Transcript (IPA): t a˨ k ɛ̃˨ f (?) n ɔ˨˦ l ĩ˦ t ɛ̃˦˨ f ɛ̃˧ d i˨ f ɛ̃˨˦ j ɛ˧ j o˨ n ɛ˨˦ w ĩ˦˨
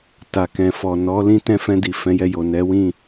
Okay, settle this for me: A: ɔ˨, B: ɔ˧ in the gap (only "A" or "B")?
A